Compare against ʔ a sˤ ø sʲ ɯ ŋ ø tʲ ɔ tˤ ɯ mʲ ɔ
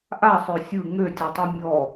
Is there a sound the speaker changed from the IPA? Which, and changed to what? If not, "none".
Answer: none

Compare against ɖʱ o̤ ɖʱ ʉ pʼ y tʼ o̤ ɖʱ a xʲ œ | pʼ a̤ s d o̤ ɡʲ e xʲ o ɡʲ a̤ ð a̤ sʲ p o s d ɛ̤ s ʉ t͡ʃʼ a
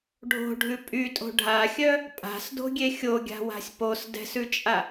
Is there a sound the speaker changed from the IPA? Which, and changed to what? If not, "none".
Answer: ð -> w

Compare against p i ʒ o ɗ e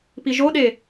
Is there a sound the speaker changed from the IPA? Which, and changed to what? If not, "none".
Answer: none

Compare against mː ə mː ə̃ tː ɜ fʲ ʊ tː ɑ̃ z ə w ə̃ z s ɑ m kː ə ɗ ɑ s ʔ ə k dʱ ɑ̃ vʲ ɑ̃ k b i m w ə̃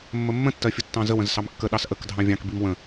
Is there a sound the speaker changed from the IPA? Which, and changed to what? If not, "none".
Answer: none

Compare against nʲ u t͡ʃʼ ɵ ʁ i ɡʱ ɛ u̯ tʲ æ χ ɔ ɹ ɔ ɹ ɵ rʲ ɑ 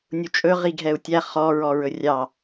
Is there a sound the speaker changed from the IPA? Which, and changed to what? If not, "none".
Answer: none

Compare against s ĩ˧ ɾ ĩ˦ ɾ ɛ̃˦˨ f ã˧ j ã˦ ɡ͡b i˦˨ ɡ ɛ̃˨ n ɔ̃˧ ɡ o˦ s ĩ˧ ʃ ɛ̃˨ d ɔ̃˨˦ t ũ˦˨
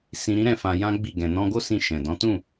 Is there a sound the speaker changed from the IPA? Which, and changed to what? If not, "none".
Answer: none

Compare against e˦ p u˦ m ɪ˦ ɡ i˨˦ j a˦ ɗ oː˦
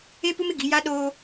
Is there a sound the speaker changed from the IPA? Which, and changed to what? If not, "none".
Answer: none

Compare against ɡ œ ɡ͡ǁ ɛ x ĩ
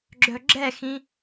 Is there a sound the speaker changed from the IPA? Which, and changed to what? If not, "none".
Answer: ɡ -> ɡ͡ǁ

